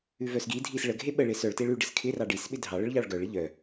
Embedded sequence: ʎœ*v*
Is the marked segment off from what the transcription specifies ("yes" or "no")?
yes